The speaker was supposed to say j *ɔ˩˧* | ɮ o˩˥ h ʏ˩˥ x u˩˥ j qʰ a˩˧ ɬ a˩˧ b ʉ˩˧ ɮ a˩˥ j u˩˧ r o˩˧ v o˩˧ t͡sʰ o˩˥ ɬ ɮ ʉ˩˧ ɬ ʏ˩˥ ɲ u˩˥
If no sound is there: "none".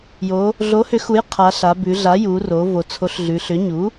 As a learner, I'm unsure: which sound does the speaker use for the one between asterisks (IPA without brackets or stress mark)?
o˩˧